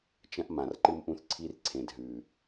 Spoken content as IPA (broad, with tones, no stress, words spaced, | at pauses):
t͡ʃɐ̃˧ʔmã˨˩rǃɨ˧mʔũ˧θ ǀʰi˧r ǀʰẽ˨˩dɦʉ˨˩